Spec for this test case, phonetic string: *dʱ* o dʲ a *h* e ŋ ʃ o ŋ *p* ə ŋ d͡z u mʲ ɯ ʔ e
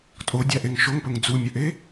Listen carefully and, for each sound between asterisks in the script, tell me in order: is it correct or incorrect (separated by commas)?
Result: incorrect, incorrect, correct